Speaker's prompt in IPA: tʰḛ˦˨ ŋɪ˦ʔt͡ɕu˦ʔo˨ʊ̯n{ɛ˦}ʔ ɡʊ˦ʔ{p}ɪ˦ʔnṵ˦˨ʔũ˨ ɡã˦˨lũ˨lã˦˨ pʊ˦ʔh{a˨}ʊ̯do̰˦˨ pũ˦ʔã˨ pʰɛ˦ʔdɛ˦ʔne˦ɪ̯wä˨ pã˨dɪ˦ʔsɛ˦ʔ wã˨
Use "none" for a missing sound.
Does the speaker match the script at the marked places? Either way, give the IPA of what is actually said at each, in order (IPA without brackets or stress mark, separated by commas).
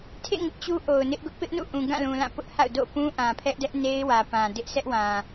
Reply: ɪ˦, p, a̰˦˨